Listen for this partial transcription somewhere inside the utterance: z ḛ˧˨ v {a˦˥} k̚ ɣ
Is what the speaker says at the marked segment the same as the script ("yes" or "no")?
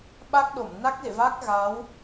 yes